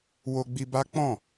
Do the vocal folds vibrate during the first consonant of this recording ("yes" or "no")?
yes